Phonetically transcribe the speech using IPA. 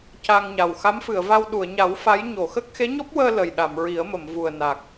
c a˧ ŋ ɲ a˨˩ w x a˧˥ m f ɨ˨˩˨ ə̯ v a˧ w ɗ u˨˩˨ ə̯ ɲ a˨˩˦ w f a˧˥ j ɲ o˨˩˨ x ə˦˥ k̚ x e˧˥ ɲ ɔ˦˥ p̚ w əː˧ l ə˨˩ j ɗ a˨˩˨ m ɹ i˨˩˦ ə̯ m ə˨˩˨ m v u˨˩ ə̯ n a˨˩ k̚

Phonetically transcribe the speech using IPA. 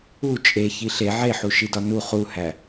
u t͡ʃʼ e ç i ɬ e ʕ e ħ u ʃ i d ɒ n u χ u h æ

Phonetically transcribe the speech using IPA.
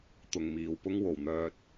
t̪ ʊ˨ ŋ m iː˨ w p ʊ˥ ŋ w o˨˩ w n̪ œː˧ t̚

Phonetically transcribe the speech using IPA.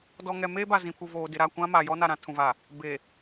d ɔ˨ ŋ ɛ˨ m eː˦ b a˨ z ĩ˨ pʰ u˨ v oː˨ d ɪ˨ ɾ a˦˨ kʷ ã˦ m a˨ j ɔ˦ n a˨ ɾ ã˨ tʰ ũ˨ v a˨ | b e˨

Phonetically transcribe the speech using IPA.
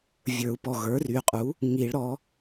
vʲ ə˞˨˩˦ u̯ p ɔ˩˧˩ ɣ ə˞˩˥ r y˩˧˩ qʼ u˩˥ | ŋ i˨˩˦ ɭ ɾ ɔ˩˥

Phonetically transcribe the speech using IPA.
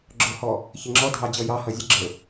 ɡ͡ǁ ʊ h ɔ | ç ɪ ŋ͡ǁ ɔ dʱ ɑ d͡ʑ ʌ j ɑ h ʌ zʲ ə ɡ͡ǁ ə˞

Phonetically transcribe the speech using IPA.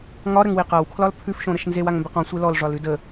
ŋ ɒ ɾ ə ŋ w e q a w kʰ l ɒ l pʰ ʉ f ʃ õ ɾ ə ʃ n z e w a ŋ m b e q ɔ̃ sʷ e l ɔ l ʐ ɒ l ʉ d ə

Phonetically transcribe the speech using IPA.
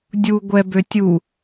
dʲ u ɡʷ ɛ b ø tʲ u

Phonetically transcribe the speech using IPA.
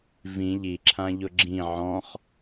v ĩ ʎ i ǁʰ ã ʎ ʊ ɡ͡ǁ ĩ ʕ ɔ̃ χ

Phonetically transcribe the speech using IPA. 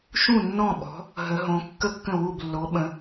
ʃ ũ˥˩ nː ɔ̃˥˩ ɓ ɔ̤˨˥ | ɦ ə˨˥ ɦ õ˨˥ kː ə˥˩ kː ə̃˥˩ w u˥˩ b lː o˨˥ ɓ ə̃˨˥

